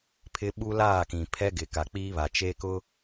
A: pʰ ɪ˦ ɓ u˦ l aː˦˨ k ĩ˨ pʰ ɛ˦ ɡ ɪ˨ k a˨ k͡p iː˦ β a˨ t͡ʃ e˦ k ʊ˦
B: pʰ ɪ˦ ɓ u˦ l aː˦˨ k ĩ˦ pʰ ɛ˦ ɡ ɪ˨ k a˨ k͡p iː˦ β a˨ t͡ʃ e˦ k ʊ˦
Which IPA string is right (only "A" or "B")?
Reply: A